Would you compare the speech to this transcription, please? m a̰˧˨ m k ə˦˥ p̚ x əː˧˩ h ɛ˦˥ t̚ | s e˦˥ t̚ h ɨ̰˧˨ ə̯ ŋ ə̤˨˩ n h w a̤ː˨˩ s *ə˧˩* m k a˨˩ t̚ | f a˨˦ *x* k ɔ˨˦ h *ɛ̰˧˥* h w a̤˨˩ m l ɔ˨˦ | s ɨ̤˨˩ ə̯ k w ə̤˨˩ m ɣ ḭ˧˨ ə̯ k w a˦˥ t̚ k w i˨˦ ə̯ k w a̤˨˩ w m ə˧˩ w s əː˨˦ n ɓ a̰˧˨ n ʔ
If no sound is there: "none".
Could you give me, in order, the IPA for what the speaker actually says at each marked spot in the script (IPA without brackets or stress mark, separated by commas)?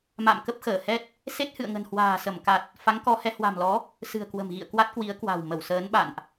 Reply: ə˧˩, ŋ, ɛ˨˦